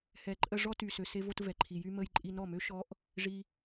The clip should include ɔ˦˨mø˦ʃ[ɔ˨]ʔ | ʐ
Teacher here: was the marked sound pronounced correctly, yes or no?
no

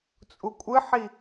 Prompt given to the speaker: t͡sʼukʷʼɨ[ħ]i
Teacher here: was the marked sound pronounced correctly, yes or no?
yes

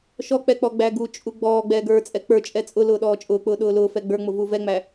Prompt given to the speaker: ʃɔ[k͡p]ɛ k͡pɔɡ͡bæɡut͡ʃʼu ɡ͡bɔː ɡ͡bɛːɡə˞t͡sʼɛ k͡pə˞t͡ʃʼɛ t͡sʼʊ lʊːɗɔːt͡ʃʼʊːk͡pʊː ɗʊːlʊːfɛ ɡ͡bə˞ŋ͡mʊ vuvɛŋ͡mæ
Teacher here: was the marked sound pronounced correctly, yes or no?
yes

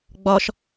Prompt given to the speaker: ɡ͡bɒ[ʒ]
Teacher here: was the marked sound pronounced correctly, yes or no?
no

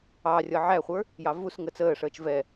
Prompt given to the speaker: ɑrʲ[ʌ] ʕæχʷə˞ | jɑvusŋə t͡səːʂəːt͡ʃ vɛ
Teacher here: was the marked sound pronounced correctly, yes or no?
yes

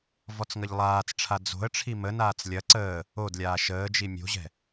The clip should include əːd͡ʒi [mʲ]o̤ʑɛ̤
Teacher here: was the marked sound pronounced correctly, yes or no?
yes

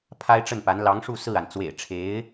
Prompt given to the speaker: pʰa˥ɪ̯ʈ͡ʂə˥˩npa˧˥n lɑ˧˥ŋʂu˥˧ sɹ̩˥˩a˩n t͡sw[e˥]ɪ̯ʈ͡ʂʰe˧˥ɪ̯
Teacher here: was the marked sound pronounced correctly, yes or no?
no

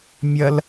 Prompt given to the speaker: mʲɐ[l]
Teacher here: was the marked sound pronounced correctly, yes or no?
yes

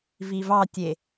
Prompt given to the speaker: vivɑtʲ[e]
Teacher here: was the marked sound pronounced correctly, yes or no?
yes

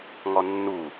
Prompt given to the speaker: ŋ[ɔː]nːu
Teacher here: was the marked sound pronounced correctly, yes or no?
no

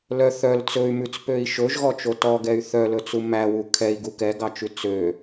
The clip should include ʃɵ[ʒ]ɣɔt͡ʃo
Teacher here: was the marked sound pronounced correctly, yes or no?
yes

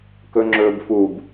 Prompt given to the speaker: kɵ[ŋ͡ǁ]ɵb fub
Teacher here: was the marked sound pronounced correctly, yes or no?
yes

